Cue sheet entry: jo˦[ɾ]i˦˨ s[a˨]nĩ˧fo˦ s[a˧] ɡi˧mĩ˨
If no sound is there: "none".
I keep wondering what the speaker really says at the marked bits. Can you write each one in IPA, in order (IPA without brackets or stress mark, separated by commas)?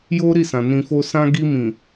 ɾ, ã˨, ã˧